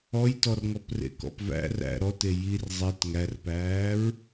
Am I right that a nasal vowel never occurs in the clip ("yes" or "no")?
yes